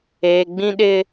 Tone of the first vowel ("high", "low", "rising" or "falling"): low